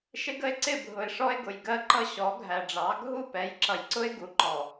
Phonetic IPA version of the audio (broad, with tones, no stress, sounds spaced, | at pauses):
ʃ ɪ˦ ɡ ə˦ e̯ ǀ ɪ˦˨ bʱ ʊ˨ e̯ ʂ ɔ˦ e̯ ɡ ʊ˨ j ɡ ɜ˦ ǃ ʌ˦ ɕ ɔ˨˦ ɡʱ æ˨ ɖ͡ʐ ɑ˨˦ ɡʱ u˦˨ p ɛ˨˦ j ǁ ʌ˨ j ǀ ʊ˦ e̯ ɡ u˨ ǃ ɔ˨